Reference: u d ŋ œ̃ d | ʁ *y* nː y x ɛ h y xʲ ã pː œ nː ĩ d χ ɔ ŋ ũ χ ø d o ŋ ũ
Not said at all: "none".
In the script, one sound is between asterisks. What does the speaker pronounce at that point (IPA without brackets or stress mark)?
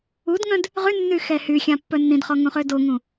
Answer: y